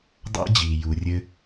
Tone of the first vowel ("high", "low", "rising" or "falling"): high